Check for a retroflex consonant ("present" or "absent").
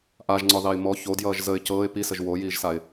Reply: absent